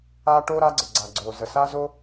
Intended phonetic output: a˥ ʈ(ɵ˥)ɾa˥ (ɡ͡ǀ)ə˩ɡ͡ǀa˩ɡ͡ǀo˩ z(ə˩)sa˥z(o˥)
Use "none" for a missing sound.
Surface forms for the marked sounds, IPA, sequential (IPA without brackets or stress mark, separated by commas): o˥, ɡ͡ǀ, ə˩, o˥